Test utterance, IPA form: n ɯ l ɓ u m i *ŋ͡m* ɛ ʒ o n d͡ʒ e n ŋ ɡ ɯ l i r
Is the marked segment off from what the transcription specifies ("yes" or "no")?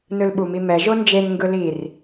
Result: yes